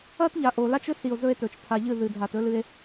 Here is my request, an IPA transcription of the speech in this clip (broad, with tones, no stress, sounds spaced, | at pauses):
ɐ˦ t ʎ a˨ ʔ o˨ l a˦ t͡ʃ ɵ˦ s i˨ o̯ z ɵ˦ e̯ t ɵ˨ t͡ʃ tʰ a˨ ʎ ɨ˦˨ ð ɨ˨ dʱ a˨ t ɵ˦ l ɨ˦ e̯